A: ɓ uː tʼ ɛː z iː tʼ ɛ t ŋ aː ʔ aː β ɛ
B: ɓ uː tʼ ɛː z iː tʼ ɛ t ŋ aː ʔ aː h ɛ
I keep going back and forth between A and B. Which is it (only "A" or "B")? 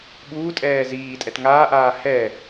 B